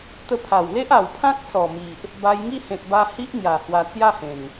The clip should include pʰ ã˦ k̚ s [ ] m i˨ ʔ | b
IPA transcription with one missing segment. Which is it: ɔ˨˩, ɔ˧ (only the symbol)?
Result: ɔ˨˩